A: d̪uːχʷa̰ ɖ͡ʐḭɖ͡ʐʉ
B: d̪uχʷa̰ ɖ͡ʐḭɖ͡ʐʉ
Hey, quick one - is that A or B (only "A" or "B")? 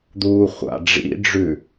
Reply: A